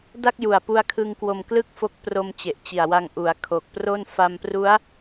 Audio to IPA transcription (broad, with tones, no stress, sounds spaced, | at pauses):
d a˥˩ k̚ j u˨˩ a̯ p u˧ a̯ kʰ ɯ˧ ŋ k w o˧ m k l ɯ˥˩ k̚ f o˦˥ k̚ p r o˧ m t͡ɕ e˨˩ ʔ t͡ɕ i˨˩ a̯ w a˧ ŋ ʔ u˩˦ a̯ kʰ o˨˩ k̚ p r o˥˩ n f a˧ m p r u˦˥ a̯